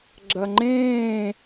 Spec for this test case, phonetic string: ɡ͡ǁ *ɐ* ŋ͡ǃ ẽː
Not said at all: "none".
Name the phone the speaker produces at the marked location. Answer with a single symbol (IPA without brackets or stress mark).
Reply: ɐ